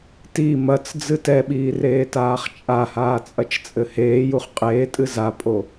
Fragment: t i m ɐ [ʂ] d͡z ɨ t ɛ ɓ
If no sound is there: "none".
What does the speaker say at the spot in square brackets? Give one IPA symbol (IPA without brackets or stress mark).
t͡s